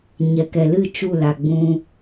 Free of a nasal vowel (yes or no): no